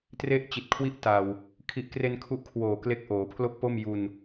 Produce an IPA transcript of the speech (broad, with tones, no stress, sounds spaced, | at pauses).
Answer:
t r e˥˩ ʔ t͡ɕ i˨˩ t̚ kʰ w i˥˩ ʔ t a˨˩ w | kʰ i˨˩ ʔ k r e˧ n kʰ u˦˥ ʔ kʰ w oː˨˩ k l e˦˥ k̚ ʔ oː˩˦ pʰ l o˥˩ k̚ p o˥˩ m j u˧ n